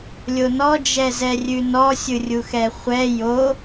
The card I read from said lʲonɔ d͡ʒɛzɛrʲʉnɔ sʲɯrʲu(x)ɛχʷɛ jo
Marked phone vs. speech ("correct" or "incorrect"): correct